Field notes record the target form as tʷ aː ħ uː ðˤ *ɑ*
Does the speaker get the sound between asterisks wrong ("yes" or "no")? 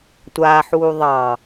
no